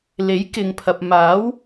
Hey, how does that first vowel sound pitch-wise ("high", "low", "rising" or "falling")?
rising